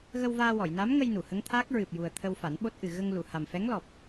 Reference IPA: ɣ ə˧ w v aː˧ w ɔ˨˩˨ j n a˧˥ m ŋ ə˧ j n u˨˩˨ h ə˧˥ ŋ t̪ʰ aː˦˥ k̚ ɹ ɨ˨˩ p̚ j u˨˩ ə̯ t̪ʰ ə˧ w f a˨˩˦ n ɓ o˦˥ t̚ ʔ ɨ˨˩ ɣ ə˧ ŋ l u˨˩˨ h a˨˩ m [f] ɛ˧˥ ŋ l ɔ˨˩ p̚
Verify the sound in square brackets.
correct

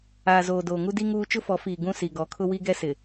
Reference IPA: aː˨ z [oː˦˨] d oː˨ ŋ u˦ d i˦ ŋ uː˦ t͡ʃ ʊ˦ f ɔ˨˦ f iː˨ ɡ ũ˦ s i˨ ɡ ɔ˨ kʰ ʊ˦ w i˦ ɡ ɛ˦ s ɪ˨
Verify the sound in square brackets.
incorrect: oː˨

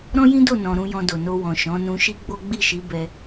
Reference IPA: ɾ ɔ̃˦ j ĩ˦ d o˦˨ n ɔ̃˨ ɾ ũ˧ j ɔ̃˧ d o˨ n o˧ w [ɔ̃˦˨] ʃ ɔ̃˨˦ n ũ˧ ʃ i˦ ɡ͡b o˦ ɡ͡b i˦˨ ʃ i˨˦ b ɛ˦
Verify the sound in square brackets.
incorrect: ɔ̃˨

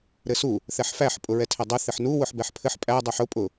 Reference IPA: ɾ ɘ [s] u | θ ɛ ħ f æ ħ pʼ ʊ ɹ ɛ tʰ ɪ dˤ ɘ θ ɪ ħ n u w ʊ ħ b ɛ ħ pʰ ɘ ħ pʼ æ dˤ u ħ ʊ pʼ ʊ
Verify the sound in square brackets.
correct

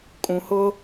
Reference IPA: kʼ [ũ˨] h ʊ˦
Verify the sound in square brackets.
correct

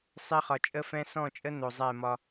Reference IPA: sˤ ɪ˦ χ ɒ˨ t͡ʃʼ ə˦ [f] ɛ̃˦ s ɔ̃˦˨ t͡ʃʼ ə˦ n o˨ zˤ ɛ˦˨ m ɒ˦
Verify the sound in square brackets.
correct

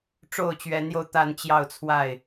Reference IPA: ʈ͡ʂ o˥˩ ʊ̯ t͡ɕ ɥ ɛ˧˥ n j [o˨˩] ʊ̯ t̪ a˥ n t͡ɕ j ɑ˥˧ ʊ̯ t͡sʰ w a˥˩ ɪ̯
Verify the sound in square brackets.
incorrect: o˧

